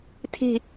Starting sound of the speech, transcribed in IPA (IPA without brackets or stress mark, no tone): tʰ